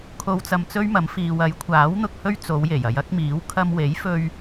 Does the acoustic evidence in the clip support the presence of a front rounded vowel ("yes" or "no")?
no